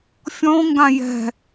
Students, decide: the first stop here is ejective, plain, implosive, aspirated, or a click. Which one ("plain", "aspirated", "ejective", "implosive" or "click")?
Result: plain